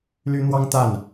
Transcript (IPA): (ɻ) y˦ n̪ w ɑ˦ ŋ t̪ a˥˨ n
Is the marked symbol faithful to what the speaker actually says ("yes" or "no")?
no